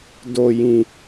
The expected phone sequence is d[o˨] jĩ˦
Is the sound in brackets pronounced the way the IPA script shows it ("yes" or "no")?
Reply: no